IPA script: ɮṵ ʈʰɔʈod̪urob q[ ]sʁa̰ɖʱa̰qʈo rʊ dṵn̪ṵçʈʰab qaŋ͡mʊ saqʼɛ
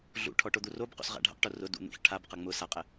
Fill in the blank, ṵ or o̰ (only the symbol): o̰